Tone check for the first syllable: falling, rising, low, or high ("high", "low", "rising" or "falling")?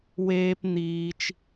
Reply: low